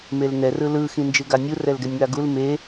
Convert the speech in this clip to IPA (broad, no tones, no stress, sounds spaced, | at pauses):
m e l n ɛ r ɯ l ɯ x ĩ n d͡ʒ ɯ ɡ a nʲ u r ɛ l ɡ ɛ nʲ ŋ a ɡ u l m e